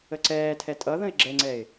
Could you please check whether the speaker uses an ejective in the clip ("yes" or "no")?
yes